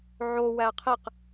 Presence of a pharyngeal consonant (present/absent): present